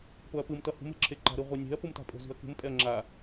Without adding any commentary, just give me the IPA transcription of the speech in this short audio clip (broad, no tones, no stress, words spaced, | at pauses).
poɐ̯pɯm tʌhṳm e̤ǁʰeǃa̤ ɾɯʁʷinʲe̤ɐ̯ pumta̤pʼo̤ zṳɐ̯kṳm pʼɛɐ̯ŋ͡ǁa